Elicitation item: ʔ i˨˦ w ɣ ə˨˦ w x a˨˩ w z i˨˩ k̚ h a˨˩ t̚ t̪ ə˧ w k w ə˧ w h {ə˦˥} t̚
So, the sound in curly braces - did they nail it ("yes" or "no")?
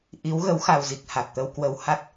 no